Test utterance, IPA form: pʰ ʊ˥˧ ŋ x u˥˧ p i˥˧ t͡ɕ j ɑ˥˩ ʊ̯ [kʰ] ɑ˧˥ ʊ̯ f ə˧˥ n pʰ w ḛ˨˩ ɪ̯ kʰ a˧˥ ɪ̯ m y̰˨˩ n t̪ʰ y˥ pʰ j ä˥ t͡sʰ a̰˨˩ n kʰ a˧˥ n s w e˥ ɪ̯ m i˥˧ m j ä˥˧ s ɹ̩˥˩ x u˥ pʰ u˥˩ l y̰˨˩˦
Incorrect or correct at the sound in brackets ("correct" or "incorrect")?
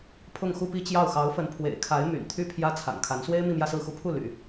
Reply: incorrect